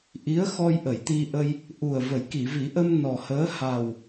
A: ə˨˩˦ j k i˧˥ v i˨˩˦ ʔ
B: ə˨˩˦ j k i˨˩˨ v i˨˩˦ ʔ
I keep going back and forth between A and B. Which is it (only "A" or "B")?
B